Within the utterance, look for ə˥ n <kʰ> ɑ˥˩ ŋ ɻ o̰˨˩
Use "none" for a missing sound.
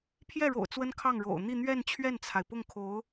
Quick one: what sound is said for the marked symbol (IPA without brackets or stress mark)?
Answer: kʰ